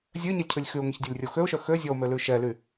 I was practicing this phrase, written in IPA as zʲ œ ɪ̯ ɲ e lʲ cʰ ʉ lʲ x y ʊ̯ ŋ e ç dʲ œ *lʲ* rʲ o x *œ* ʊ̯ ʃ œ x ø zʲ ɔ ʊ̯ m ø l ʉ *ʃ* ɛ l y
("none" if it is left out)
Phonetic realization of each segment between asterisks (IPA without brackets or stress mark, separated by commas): lʲ, ø, ʃ